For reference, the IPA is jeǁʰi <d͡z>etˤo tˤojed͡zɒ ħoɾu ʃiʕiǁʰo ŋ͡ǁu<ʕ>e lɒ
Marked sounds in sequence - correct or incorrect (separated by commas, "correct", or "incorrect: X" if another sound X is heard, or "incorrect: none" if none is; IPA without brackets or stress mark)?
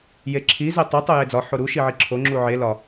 incorrect: z, correct